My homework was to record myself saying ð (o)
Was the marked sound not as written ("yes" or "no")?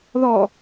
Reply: yes